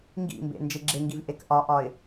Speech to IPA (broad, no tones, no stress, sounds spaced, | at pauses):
ŋ ɡ ḭ m b ḛ n d͡ʒ e ɡ͡ǁ e ŋ ɡ i v ʔ e k ʔ ɒ ʔ ɒ ɪ̯